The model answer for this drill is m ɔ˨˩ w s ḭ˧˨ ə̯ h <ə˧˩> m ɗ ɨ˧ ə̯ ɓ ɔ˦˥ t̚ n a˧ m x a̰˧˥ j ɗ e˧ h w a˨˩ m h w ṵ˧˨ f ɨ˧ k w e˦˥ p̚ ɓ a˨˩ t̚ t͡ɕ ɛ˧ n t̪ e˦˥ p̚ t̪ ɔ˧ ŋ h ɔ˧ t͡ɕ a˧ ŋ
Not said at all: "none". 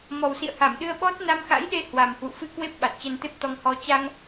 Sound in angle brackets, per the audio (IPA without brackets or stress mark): a˧˩